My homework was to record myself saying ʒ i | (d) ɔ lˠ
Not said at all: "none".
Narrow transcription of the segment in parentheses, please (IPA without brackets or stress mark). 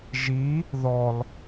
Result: ð